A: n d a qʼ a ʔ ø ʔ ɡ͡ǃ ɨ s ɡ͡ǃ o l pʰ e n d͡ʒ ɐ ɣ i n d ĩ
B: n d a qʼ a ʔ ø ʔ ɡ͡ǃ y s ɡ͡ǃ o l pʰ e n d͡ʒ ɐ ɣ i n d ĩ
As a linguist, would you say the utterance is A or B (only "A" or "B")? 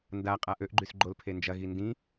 B